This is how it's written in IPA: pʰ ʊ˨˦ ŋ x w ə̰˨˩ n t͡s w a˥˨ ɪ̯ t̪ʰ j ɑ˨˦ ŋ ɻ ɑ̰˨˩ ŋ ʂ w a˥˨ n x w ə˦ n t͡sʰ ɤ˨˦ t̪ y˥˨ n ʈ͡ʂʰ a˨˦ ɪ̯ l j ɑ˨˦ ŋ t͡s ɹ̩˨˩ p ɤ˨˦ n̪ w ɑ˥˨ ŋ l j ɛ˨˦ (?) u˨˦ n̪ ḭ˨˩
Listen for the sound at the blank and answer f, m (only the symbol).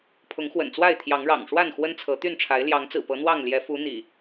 f